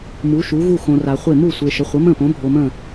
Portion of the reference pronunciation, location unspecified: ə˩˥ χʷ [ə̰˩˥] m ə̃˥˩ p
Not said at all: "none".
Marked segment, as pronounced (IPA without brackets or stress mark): ə˩˥